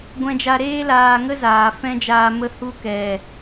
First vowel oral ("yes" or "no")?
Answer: no